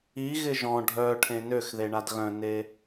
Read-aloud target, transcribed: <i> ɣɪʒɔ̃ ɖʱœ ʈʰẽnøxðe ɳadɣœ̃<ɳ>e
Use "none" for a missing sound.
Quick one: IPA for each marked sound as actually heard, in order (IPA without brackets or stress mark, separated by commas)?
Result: i, n